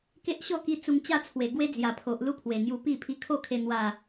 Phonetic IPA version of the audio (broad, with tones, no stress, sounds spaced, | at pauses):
k e˦ ʔ ɕ ɔ˥˧ k i˧ t͡s u˧ ŋ t͡ɕ a˥˧ t͡sʰ w e˨˩ ɡ w e˦ d͡z j a˨˩ pʰ o˨ ʔ l u˥˧ pʰ w e˨˩ ŋ j u˧ p i˥˧ pʰ i˧ kʰ o˥˧ kʰ e˧ n̪ w a˥˧